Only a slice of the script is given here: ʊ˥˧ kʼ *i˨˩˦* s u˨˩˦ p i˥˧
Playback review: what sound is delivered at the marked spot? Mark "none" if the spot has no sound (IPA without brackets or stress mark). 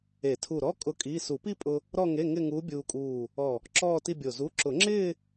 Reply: i˧˥˧